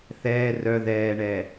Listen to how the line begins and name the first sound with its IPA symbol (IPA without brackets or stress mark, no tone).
θ